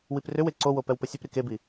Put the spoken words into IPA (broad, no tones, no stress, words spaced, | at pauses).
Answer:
wiprʏwe ǀowo pɛwpəsʲɵpɾi kebi